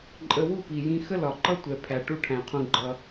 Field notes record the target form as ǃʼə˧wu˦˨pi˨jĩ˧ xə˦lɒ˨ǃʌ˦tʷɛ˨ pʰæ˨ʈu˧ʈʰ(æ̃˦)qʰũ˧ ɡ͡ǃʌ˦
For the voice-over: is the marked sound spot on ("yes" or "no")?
no